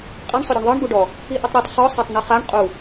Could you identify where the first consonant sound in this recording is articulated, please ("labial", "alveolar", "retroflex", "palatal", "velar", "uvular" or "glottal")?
uvular